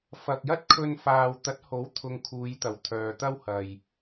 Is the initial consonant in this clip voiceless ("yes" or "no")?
yes